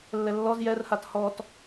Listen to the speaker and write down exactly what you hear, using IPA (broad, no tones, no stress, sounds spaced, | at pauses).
lː ɛ lː ɔ z j ɛ r h a t h ɔ t